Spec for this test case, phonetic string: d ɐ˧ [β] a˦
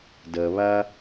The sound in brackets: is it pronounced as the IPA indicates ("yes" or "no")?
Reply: yes